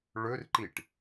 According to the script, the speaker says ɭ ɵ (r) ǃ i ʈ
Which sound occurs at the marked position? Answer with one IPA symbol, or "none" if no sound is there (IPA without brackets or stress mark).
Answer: r